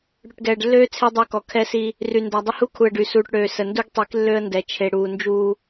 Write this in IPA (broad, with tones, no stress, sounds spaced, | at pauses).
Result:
ɽ y˨ ʈ ɡ ɛː˨ ɖ lː øː˦ t͡sʰ e˦ dˤ œ˦˨ k ɔ˨ kʰ ɛ˦ s i˦ | r y˨ n d a˨ dˤ ə˦ h u˦ kʰ u˨ ə̯ ɖ y˨ s uː˨ ʈ ɽ øː˨ s ə˨ n d u˦ ɡ tˤ i˨˦ k lː ø˦ ə̯ n d ɛ˨ t͡ʃʰ e˨ ɽ uː˨ n d͡ʒ uː˦